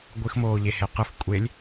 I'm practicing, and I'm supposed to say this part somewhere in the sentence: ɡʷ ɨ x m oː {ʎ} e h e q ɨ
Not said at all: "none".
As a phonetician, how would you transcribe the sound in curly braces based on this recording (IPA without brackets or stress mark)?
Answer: ʎ